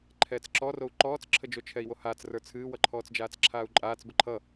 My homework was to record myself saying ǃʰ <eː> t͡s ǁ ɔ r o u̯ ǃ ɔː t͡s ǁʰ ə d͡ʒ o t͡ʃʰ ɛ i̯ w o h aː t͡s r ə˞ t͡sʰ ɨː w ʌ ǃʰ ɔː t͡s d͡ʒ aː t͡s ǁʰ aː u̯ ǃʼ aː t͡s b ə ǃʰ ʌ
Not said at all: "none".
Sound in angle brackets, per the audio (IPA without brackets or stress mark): ɛː